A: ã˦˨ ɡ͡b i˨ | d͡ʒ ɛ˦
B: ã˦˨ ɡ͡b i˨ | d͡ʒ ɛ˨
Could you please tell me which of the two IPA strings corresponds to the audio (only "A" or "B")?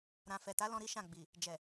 B